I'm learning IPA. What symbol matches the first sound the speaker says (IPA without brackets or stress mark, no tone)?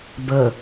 b